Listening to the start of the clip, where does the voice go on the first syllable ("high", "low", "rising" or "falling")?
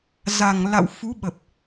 low